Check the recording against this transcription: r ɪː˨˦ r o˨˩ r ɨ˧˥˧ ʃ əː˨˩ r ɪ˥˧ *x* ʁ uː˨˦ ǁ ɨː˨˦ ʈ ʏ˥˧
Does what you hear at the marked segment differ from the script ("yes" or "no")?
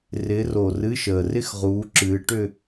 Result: no